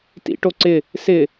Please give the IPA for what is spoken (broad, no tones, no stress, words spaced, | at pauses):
tḭʈo ǀɪ | sɪ